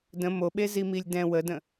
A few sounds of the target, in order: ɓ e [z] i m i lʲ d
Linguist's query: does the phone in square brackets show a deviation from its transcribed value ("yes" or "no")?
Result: no